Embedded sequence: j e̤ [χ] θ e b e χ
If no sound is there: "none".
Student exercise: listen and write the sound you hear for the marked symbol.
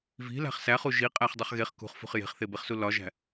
χ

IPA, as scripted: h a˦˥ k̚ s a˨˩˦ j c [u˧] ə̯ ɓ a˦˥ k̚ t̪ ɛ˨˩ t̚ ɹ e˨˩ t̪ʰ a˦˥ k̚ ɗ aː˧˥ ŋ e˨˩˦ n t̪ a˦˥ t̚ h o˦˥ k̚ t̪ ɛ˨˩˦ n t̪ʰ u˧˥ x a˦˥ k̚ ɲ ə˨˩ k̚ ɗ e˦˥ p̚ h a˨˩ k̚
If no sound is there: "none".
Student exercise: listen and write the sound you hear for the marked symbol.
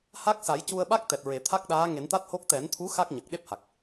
u˧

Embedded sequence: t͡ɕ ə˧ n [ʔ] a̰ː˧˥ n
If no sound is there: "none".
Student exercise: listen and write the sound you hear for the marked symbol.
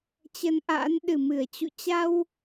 ʔ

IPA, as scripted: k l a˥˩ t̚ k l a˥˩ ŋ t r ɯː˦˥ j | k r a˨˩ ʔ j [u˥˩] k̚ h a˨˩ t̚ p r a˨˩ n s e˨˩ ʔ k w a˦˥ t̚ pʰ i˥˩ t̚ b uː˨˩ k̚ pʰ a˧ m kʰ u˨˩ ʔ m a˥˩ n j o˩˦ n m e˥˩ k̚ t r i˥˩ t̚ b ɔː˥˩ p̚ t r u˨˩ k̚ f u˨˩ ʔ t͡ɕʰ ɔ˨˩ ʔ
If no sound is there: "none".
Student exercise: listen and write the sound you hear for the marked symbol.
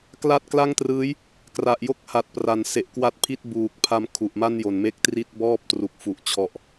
o˥˩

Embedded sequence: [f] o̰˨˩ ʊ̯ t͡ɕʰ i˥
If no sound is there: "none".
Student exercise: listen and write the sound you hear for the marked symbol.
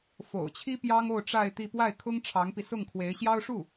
f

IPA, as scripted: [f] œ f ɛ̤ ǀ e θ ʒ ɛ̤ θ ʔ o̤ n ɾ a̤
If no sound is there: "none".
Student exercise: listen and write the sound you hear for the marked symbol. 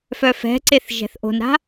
f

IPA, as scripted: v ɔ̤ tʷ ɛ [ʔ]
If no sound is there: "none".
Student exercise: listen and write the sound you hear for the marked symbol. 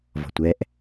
ʔ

